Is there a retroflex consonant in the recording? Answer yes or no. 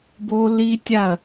no